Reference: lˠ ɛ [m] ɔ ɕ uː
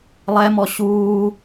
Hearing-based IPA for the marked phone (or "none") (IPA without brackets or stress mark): m